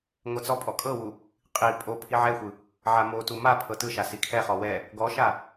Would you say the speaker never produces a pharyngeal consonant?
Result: no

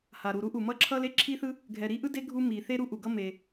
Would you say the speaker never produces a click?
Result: no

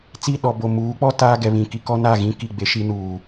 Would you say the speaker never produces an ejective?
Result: yes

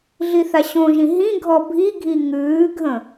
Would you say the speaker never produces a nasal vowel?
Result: no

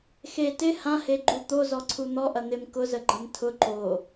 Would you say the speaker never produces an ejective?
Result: yes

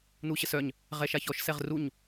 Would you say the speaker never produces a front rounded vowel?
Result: no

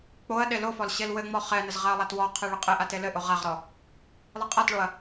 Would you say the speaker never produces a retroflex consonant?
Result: no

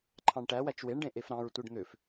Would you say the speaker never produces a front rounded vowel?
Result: no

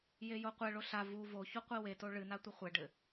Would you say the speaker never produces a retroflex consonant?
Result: no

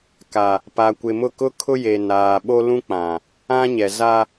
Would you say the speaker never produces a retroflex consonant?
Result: yes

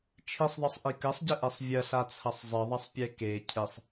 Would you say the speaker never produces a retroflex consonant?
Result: yes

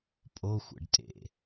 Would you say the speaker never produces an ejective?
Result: no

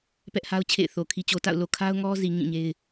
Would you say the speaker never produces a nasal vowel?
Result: no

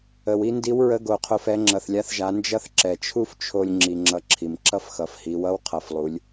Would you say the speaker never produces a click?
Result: no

